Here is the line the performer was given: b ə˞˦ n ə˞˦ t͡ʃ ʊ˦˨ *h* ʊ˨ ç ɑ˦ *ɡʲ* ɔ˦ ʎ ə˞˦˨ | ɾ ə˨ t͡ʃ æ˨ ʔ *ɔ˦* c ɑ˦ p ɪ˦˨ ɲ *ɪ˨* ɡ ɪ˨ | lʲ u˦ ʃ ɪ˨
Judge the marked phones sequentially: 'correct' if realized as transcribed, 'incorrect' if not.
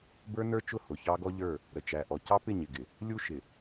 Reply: correct, incorrect: ɡ, incorrect: ɔ˨, correct

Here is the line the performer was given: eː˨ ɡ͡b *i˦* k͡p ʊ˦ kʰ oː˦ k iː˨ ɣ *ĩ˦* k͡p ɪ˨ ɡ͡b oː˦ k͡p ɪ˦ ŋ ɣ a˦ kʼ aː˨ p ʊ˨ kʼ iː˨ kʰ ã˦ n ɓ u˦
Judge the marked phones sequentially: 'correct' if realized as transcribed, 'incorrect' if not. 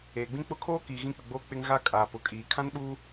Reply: incorrect: ĩ˦, correct

